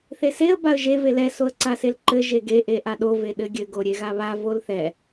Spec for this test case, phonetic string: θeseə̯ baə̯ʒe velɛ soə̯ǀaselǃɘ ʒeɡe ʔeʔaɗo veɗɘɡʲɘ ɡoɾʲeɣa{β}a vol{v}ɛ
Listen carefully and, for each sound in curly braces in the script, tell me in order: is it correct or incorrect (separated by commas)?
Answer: correct, incorrect